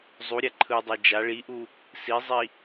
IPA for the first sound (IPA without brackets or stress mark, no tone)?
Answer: zˤ